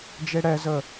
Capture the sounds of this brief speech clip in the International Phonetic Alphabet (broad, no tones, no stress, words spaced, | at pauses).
d͡ʒeɽɛzə